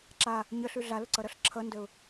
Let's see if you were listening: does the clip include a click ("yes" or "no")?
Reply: yes